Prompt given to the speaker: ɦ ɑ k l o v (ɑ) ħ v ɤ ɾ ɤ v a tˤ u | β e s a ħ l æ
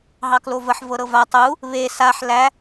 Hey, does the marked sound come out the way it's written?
no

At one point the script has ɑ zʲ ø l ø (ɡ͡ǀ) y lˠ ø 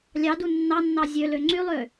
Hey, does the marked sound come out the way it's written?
no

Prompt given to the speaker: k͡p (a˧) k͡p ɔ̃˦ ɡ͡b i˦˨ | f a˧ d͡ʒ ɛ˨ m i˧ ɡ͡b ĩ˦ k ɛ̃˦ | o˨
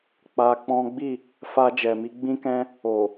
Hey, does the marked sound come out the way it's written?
yes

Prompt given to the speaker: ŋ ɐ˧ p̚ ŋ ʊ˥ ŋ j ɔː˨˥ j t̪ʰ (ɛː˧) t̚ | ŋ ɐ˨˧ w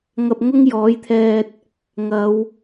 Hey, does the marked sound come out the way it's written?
yes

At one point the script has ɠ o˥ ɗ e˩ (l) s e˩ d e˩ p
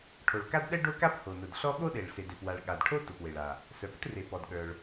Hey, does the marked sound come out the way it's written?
no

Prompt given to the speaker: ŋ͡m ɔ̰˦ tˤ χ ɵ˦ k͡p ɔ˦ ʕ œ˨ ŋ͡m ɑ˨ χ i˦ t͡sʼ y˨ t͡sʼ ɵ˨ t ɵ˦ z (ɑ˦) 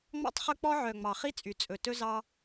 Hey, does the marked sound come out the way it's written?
yes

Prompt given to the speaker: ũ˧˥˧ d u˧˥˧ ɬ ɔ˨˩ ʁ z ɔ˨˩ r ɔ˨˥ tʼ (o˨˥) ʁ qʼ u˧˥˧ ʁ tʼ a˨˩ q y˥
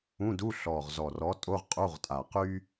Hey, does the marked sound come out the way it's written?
no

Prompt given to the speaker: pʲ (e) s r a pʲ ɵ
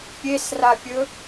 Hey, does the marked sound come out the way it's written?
yes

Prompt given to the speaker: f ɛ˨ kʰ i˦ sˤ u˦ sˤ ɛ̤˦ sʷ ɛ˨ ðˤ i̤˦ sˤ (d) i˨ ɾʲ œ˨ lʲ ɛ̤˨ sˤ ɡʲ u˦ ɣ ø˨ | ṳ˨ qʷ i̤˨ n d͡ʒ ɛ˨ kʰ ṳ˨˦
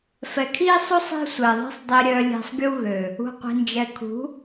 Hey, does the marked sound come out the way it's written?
no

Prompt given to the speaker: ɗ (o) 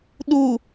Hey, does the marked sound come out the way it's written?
no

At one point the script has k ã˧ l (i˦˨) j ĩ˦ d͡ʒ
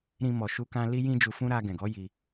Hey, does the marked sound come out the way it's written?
no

